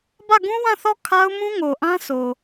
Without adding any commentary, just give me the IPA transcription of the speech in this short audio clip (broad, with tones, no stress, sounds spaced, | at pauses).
b ä˦˨ ɡ ũ˦ w ã˦˨ θ ɔ˦˨ kʰ a˦ ʊ̯ m ũ˦ ŋ o˨ ʔ ã˦ s o˨